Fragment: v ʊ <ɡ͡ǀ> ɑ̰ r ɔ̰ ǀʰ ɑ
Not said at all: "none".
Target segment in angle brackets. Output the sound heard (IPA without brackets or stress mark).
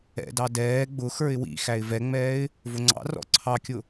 ŋ͡ǀ